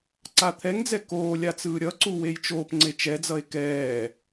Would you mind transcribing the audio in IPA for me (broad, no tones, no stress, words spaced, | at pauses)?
ǀat̪ʰɛŋd͡zɛ koː lʲat͡sɯːɾʲʌǀu wejt͡ʃoːpŋ͡ǀe t͡ʃɛd͡zʌe̯ kɛː